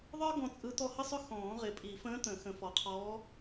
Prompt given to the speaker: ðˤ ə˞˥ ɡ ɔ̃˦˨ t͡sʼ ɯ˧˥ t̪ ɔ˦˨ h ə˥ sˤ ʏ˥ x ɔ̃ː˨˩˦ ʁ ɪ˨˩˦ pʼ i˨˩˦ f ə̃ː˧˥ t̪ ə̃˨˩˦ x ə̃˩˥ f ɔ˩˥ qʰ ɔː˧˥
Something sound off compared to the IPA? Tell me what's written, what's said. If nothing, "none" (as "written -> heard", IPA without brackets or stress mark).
none